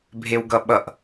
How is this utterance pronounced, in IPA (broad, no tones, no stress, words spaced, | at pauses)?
bʱewɡʌɓʌʔ